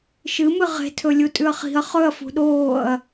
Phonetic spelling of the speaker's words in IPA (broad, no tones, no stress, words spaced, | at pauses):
ʃɨmɨ ʁe̤tʰɵ lʲutʼʉɐ̯χi̤ɐ̯ χɵɐ̯ fṳɗoːɐ̯